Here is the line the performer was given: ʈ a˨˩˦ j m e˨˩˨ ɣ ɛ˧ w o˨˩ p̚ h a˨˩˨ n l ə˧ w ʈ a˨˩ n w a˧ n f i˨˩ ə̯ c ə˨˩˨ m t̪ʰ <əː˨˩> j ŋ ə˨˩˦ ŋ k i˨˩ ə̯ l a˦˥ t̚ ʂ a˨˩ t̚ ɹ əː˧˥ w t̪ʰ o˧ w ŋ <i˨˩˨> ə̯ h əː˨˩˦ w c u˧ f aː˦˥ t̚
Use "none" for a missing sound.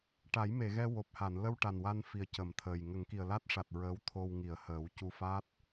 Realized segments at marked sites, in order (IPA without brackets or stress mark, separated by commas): əː˨˩, i˨˩˨